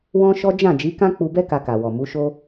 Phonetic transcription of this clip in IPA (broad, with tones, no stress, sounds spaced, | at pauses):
w ɔ̃˦ ʃ ɔ˦ d͡ʒ ã˦˨ d͡ʒ i˨˦ k ã˦ k͡p u˧ b ɛ˦ k a˧ k a˨ w ɔ˨ m u˨˦ ʃ o˦